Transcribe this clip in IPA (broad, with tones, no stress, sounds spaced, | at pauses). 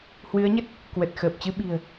h w ɨ˨˦ ə̯ ɲ ə˦˥ t̚ | k w ə˨˩ t̚ x əː˨˩ p̚ t͡ɕ ɨ˧ ɓ i̤˨˩ ə̯